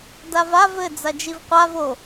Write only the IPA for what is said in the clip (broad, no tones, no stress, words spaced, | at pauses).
davav ɘ d͡zad͡ʒivqʷav o